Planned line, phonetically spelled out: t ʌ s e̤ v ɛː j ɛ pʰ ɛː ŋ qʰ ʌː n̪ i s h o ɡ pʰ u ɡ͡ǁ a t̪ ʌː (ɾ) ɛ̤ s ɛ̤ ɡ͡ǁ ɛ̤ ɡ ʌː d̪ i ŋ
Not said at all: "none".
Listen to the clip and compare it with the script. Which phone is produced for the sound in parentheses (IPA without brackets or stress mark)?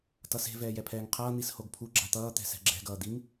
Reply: t̪